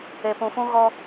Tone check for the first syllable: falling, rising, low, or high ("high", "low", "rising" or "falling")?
low